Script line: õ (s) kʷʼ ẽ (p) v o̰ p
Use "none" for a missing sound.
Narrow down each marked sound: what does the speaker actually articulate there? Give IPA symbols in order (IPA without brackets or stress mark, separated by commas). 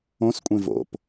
s, none